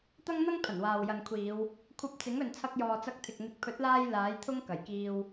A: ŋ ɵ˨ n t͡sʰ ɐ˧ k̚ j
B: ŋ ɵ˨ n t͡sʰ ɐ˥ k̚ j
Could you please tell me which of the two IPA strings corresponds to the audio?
A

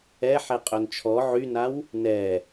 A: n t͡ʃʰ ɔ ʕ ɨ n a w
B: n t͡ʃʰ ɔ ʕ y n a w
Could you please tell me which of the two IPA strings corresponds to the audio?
B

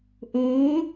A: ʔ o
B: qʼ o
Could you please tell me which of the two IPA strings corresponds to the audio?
A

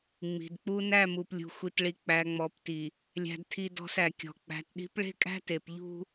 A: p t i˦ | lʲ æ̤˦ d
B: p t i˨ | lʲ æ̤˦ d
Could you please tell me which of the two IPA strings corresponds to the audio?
B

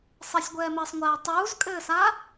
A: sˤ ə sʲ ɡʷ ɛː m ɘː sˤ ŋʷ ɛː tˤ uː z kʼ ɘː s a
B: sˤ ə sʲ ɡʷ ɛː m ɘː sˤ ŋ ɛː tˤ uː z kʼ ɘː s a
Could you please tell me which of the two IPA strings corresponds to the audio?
A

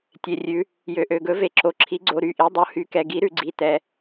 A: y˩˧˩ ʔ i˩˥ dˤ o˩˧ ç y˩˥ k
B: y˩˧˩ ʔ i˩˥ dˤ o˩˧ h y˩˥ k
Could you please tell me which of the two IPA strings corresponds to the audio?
B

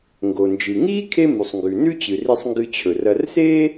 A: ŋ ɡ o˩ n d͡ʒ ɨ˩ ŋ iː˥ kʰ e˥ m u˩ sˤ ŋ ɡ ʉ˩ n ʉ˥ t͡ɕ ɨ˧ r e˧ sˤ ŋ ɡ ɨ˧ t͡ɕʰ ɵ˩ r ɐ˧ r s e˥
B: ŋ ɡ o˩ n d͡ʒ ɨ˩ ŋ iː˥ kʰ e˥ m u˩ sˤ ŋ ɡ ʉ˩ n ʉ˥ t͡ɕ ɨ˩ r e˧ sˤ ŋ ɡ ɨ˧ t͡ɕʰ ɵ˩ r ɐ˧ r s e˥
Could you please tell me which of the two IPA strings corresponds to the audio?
B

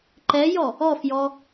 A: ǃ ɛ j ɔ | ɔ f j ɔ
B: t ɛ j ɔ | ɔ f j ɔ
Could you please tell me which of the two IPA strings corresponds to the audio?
A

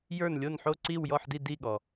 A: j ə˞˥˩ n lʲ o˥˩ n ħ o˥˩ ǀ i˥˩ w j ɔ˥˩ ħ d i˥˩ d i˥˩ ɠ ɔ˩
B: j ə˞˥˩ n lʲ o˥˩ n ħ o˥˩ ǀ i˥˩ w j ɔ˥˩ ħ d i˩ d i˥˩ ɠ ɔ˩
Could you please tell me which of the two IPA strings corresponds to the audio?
A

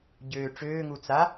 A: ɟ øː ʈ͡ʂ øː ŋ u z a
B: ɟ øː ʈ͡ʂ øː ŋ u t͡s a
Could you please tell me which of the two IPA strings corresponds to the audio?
B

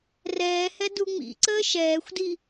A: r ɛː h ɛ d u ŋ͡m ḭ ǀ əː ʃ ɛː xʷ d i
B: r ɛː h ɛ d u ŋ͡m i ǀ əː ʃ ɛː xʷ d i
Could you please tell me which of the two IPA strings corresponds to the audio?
A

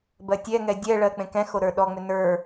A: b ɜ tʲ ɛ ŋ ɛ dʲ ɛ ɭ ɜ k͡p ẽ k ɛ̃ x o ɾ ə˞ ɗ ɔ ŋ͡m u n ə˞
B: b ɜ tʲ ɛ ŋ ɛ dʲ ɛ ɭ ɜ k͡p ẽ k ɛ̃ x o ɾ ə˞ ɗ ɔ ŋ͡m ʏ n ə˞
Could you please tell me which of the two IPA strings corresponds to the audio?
B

